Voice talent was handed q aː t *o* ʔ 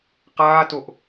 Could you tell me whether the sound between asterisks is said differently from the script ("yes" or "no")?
no